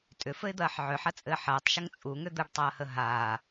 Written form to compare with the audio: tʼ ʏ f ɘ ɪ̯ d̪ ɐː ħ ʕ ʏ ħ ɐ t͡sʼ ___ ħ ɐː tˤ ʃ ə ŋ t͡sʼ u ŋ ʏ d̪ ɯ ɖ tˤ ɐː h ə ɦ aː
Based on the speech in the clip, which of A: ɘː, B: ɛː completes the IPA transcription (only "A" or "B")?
A